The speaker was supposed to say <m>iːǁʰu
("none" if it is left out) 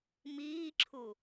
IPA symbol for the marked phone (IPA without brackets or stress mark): m